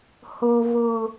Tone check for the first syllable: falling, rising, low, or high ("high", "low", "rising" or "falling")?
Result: high